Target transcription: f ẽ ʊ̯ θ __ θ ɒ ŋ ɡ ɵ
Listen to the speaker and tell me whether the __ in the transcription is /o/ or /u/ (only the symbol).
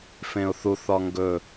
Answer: u